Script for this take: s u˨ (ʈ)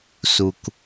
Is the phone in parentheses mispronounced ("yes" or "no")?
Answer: yes